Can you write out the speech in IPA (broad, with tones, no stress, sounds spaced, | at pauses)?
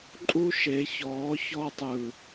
ǃʼ u˦ ʃ e˨˦ ç ɔː˨˦ ç ɔ˧ tˤ ɯ˨